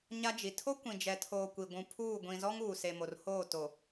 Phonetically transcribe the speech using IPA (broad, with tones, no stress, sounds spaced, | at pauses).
ɲ a˦ d͡ʒ i˨ tʰ o˦ kʷ ĩ˨ d͡ʒ ɛ˨ tʰ oː˨ kʷ i˨ ɡʷ ũ˨ pʰ uː˦˨ ɡʷ ĩ˨ z ɔ˦ ŋ uː˨ s e˨ m o˨ r h oː˦˨ t o˨